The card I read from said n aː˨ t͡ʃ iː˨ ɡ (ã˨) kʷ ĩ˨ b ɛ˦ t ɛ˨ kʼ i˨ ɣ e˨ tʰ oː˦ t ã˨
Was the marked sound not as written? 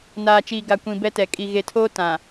yes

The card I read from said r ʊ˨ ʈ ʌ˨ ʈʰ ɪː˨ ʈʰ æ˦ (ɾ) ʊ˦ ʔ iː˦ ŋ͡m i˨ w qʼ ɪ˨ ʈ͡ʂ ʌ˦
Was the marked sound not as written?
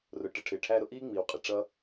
no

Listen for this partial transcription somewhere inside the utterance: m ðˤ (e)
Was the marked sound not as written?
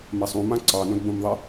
no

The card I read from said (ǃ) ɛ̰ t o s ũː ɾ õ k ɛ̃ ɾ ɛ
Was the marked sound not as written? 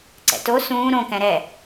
yes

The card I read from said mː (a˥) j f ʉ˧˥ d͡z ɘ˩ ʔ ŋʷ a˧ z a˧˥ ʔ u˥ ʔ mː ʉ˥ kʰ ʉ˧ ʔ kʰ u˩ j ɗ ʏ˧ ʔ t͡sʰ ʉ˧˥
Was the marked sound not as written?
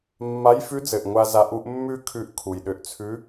yes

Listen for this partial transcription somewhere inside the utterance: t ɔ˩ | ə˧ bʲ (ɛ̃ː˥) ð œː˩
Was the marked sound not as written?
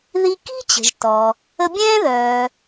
no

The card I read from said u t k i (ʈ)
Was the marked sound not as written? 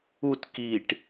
no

